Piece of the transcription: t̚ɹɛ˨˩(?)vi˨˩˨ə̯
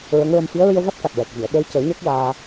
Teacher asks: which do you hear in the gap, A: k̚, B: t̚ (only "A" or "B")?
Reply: A